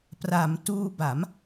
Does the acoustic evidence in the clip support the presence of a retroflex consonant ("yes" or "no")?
no